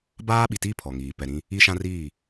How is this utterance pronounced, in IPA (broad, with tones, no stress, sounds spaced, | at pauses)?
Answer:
b aː˦ ɓ i˨ t iː˦ pʰ ɔ˨ ŋ iː˨ p ɛ˨ ɾ ĩ˦ | i˦ ʃ ã˦ r iː˦˨